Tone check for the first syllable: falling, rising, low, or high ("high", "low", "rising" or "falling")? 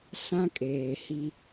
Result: high